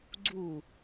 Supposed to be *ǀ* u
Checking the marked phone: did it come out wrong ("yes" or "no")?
yes